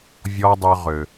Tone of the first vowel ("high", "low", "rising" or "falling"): high